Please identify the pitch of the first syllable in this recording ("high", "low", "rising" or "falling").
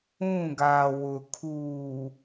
falling